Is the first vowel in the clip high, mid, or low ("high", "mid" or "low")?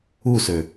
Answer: high